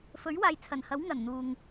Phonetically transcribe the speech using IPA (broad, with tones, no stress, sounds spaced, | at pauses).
f ɵ˨˥ ɥ w aː˨ j t͡sʰ ɐ˨˩ n h ɐ˨˥ w ŋ ɐ˨˩ n n̪ uː˨ ŋ